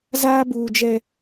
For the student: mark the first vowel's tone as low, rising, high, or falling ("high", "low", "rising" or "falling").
high